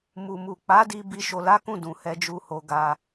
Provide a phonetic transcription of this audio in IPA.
mu˨mu˨ k͡pa˨˦di˧ bi˧ ʃo˧la˦kũ˦˨ dũ˨hɛ˧d͡ʒu˧ho˧ ɡa˧

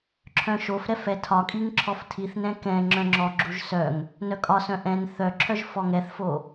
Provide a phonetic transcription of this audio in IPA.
ǁʰœ̃ʃofɾɛf ɛtʰɒkʼiŋ ǁʰɔftʰiθnɛ̃ kɛ̃ ŋ͡ǁœ̃ŋ͡ǁɔɡ͡ǁuʒ sœŋ | nœkʼɒsœ̃ ʔɛ̃n θœǁʰœʒ fɔŋɛθfo

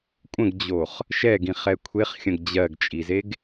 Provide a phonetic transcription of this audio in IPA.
kʷʼə̃ɡd͡ʑoχ | ʃɛɡĩχɛ kʷʰeχxʲə̃ɡ d͡ʑɜɡt͡ʃʼizeɡ

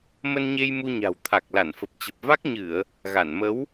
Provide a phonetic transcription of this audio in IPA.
mə˧nɲe˧j mu˧ɲa̤˨˩w t̪ʰa˨˩k̚la˧˩nfə˨˩p̚t͡ɕə˨˩p̚ va˦˥k̚ɲɨ˧˩˨ə̯ | ɣa˧˩nmə˨˦w

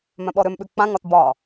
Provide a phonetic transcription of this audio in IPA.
mœ̃ɓɔɾʏmɓʉ k͡pãŋɒt bɒ

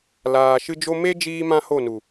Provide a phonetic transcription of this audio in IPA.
laː˨ ʃɨ˦d͡ʒo˦ me˦ d͡ʒiː˦mã˦ho˦˨nu˨

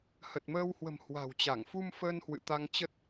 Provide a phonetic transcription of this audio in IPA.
hə˨˩t̚məː˧whwə̤˨˩m hwa̤˨˩wt͡ɕa˧˩ŋ fu˧m fəː˧nhwɨ̰˧˨t̪a˧ŋ t͡ɕə˦˥t̚

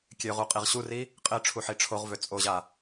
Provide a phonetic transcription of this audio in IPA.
kʲøʁu qʼiʁɕuri | qʼɪ ʈ͡ʂʰuħiʈ͡ʂʰoʁvø t͡sʼoʑa

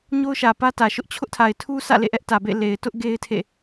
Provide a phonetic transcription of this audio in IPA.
ɲo˦ʊ̯ʃä˨pä˦ tä˨ʃʊ˦ʔ t͡ɕʰʊ˦ʔtʰa˨ɪ̯tʰu˦sʰä̰˦˨ lḛ˦˨ʔɛ˦ʔtä˨bḛ˦˨ le˨ɪ̯tʊ˦ʔ ɡe˦ɪ̯ tʰḛ˦˨

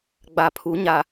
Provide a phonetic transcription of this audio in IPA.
ɡ͡ba˨pʰu˨˦ɲa˨

